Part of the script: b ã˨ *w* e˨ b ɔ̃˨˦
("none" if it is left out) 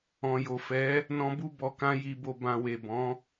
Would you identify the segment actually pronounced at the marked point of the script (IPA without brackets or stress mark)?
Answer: w